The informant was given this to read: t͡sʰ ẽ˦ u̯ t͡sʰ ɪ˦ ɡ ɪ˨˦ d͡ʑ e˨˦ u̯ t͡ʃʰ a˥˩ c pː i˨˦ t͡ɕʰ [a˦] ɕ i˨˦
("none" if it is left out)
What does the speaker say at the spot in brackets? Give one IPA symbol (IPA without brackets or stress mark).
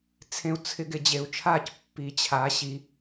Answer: a˨˦